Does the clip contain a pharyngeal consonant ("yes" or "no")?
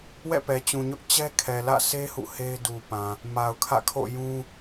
no